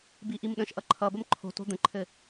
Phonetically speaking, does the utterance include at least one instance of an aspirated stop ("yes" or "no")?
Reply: yes